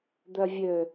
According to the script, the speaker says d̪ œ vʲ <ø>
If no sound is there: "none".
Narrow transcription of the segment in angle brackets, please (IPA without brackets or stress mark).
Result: ø